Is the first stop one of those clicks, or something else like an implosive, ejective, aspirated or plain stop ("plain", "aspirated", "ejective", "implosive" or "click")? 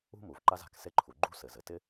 click